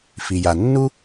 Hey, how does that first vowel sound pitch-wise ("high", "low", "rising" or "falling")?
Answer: low